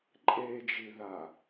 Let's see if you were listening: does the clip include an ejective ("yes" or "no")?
yes